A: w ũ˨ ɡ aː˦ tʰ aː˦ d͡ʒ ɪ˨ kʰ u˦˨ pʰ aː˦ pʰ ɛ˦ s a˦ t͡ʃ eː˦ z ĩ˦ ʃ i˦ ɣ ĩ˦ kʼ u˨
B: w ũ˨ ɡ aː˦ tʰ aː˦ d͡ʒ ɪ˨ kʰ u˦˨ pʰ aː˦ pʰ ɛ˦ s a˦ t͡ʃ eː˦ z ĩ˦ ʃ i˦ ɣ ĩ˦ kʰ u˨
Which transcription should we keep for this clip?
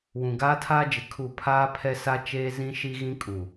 A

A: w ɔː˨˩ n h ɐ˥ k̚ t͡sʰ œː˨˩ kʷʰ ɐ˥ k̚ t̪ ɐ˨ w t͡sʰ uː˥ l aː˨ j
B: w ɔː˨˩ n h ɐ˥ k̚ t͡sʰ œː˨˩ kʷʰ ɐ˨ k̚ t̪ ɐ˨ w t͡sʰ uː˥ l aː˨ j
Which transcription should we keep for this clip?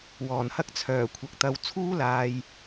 B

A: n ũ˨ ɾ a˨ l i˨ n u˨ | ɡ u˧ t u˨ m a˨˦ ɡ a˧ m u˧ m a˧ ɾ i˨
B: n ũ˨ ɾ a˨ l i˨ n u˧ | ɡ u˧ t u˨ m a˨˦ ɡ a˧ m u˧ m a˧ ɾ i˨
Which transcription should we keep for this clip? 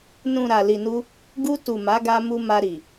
B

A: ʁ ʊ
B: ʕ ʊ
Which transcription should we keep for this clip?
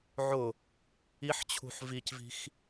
B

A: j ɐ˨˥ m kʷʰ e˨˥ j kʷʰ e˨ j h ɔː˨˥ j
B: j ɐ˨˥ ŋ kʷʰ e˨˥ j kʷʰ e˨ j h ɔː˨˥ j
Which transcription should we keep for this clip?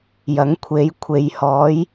B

